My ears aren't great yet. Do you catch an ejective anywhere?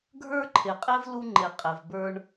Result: yes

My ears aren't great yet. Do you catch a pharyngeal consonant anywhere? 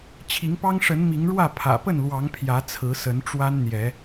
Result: no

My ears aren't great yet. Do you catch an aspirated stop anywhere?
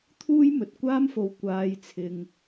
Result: yes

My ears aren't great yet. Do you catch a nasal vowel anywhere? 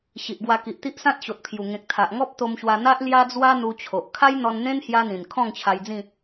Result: yes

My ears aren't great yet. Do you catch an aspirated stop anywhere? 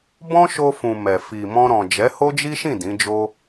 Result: no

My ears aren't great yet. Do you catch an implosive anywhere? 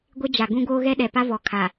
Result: yes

